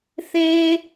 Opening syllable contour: high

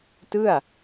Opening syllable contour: falling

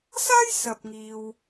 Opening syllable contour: high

